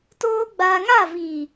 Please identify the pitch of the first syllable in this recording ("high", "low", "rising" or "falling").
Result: high